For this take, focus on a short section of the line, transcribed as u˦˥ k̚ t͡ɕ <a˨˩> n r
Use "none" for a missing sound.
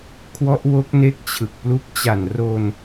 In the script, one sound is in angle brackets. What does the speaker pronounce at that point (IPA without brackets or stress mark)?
a˨˩